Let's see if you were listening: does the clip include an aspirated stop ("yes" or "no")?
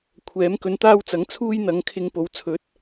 yes